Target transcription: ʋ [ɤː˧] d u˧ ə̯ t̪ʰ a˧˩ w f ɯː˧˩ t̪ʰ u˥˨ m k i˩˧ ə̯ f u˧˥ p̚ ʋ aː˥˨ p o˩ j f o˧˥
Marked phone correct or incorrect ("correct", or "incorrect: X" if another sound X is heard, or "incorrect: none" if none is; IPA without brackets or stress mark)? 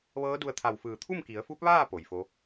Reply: incorrect: ɤː˧˥